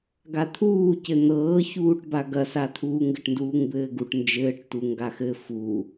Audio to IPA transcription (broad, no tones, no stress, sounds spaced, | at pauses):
ɡ a t̪ʰ uː c ɘ n̪ ɤː ç uː ʈ b a ɡ ɐ s a t̪ʰ uː ŋ ɡ ɘ ʈ n d uː ŋ b ɘː ɡ u ʈ n d͡ʒ ɘː ʈ t u ŋ ɡ a x ɘ f u